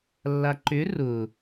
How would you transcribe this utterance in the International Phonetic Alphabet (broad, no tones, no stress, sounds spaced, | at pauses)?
lː a ǃ ʏ r ʊ